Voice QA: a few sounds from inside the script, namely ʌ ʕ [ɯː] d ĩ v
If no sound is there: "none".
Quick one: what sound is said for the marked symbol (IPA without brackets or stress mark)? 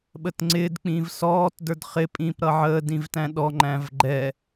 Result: əː